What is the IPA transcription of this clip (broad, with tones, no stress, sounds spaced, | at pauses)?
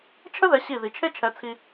t͡ʃʰ ə˥ ð ɛ˩˥ ɕ i˥˩ ð i˩ t͡ʃʰ e˥ t͡ʃʰ ɛ˩˥ t͡sʰ i˧